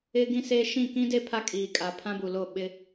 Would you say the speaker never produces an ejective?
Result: no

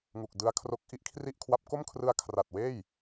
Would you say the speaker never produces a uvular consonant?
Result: yes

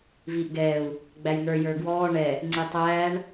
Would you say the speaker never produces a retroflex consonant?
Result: no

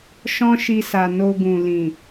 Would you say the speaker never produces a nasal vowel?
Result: no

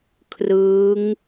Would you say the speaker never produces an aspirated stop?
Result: no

